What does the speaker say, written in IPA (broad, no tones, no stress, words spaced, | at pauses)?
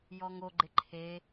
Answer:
jɔŋoɡ͡ǃɪ ǃʰe